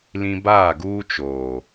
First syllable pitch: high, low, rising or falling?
high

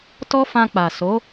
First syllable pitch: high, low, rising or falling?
high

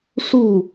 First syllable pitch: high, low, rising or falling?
falling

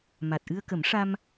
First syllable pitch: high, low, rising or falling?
low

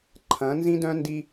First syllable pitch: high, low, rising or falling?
rising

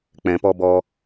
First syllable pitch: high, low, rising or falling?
low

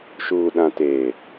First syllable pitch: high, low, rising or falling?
low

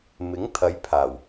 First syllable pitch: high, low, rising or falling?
rising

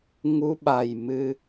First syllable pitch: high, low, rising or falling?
rising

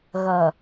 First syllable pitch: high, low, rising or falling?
low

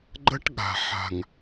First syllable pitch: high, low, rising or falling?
high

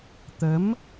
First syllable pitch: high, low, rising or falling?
rising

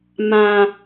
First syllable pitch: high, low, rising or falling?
low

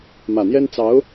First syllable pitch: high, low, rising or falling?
low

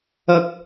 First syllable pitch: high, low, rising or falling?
rising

